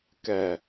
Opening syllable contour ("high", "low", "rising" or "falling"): low